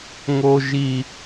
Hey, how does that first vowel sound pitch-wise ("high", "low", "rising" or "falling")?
high